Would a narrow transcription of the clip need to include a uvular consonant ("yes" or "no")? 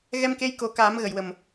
no